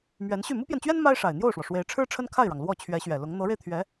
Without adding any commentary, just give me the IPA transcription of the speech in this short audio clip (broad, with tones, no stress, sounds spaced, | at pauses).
m ɥ ɛ˧˥ n ɕ y˥˩ m u˥ p j ɛ˨ n t͡ɕ ɥ ɛ˥ n m a˥ ɪ̯ ʂ a˨˩ ɪ̯ n̪ j o˥˩ ʊ̯ ʂ w ɔ˩ ʂ w e˧˥ ɪ̯ ʈ͡ʂʰ ɻ̩˥ ʈ͡ʂʰ ə˥ n kʰ a˥˩ ɪ̯ ɻ ɑ˩ ŋ l w ɔ˥˩ t͡ɕʰ ɥ ɛ˧˥ ɕ ɥ ɛ˨˩ l ʊ˧˥ ŋ n̪ ɤ˧˥ ɻ e˧ ɪ̯ t̪ʰ ɥ ɛ˧˥